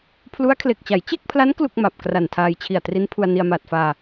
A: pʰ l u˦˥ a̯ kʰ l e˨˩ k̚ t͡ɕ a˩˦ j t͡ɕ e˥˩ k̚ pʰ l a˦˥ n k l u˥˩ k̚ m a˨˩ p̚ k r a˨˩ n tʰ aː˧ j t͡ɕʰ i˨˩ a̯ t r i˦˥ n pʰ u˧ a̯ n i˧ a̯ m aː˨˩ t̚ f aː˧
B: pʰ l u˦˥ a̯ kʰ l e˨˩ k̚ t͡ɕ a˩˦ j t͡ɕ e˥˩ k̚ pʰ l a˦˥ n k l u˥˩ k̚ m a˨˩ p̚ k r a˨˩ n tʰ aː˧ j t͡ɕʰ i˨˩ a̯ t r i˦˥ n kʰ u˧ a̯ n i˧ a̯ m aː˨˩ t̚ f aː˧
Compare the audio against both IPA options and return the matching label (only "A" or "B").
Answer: A